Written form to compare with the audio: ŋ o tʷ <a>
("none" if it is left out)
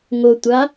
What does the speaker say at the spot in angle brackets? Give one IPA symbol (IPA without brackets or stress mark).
a